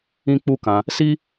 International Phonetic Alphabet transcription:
ĩ˦ k͡p u˦ k ã˧ | s i˦

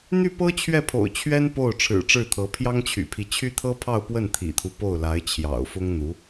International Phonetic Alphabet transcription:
n̪ y˥˩ p ɤ˥ t͡ɕʰ ɥ ɛ˥˩ pʰ o̰˨˩ ʊ̯ t͡ɕʰ ɥ ɛ˥ n p o˥˩ ʊ̯ ʈ͡ʂʰ ɻ̩˨˩ ʈ͡ʂ ɻ̩˥˩ t̪ʰ ɤ˧˥ pʰ j ɑ˥ ŋ t͡ɕʰ y̰˨˩ pʰ i˦ t͡ɕʰ y˥ t̪ʰ ɤ˥ pʰ ɑ˥˧ ʊ̯ p w ə˥˩ n t̪ʰ ḭ˨˩ t̪ʰ u˦ p o˥˩ ʊ̯ l a˧˥ ɪ̯ t͡ɕʰ j ɑ̰˨˩ ʊ̯ f ʊ˥ ŋ n̪ u˧˥

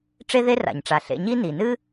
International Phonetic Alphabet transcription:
ʈ͡ʂ e˦ ð e˦ r a̰˩ ɲ ʈ͡ʂ a˩ ɬ ḛ˨ ɲ i˦ n i˩ n ɨ˥

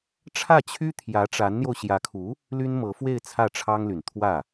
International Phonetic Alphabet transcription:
ʈ͡ʂʰ ä˥˩ t͡ɕʰ y˥ t̪ʰ j ä˧˥ ʈ͡ʂ a˧˥ n n̪ j o˧ ʊ̯ ɕ j ä˧˥ kʰ u˧˥ | l y˥ n m ɤ˧˥ f w e˥˧ ɪ̯ t͡sʰ ä˥˩ ʈ͡ʂʰ ɑ˥ ŋ l y˨˩ n t̪ʰ w ä˥˩

